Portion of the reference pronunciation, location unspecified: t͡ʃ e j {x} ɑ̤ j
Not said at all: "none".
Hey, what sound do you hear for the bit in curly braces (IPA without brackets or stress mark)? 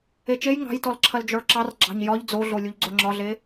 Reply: ŋ